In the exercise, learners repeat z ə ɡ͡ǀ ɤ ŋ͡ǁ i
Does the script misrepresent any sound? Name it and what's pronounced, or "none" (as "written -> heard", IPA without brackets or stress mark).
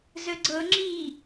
none